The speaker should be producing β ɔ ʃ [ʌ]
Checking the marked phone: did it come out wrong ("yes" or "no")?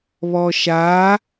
yes